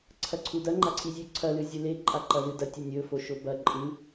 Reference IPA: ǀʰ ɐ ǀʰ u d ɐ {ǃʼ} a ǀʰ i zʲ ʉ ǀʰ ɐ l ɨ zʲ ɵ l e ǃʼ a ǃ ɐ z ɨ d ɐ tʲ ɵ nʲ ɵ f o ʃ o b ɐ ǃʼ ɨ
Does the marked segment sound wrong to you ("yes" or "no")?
yes